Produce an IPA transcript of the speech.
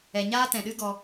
ɛ˨ɲaː˦tɛ̃˨ɗɨ˦ ɡɔ˧

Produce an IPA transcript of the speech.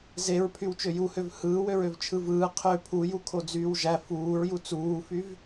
zeɹpʰyw t͡ʃøjuhøv hɯːwøɹøv t͡ʃʰɯvɯː qʰø pʰu jukʰod͡zyːwʒæ fuːɹju t͡suːfyv

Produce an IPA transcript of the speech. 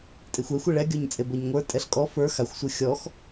tʼexʷɛxʷ eɭɛɡʲɔɲt͡sʼeb ɤɲŋʷə˞ tʼɛɬkʼɔ fə˞ xaxʷsʷɤ xʲɔx

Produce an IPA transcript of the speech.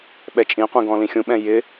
ɓɛt͡ʃʼĩqʷĩ ɡɔ̃lĩxʲũɓɛ̃ jɪ

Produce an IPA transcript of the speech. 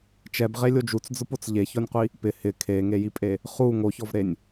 t͡ʃɛbʁelʲo d͡ʒut͡sd͡zʊpot͡s ʎeçɔnʲqʷi | pɪ hɪ kʰeŋejipʼe | χu ŋoçɔvɾenʲ

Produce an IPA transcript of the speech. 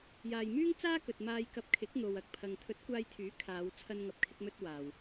jaː˨jmyː˥ŋt͡saː˥ kɵ˨t̚maː˧jkɐ˧p̚ kʰɪ˨˥k̚ n̪o˨wɐ˨k̚pʰɐ˨ŋ t̪ʰɵ˨˥t̚kʷaː˧jt̪ʰyː˨˥ kʰaː˨˧w t͡sʰɐ˥nŋɐ˧p̚kʰɪ˥k̚mɵ˥t̚ waː˨w

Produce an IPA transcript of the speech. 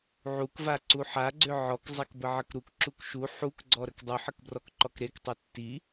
ʕukvaǀu ħaɡ͡ǀʏ ʕɔkzˤakbəʕək ɾukǁuk ʃu ħukɡ͡ǀɔɾək dˤuħəkbrɔkǃɔk ɾektˤu tːi

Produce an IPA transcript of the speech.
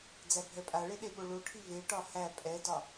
d͡zæbʱɛpʼaɭe ɗeɓoɭoʈʰi veʈɒ hæ pʼɛdɒ

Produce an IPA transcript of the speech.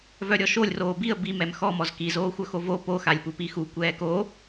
vœɾʲɔʃolʲroː biə̯ bimɛm xɔmɔz kizoːxʷœxo vo poxalʲpu pixu kʷɛːko

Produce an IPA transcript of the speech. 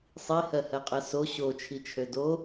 sˤihɜhɜqʼɜ so ɕot͡ʃʰit͡ʃʰø do

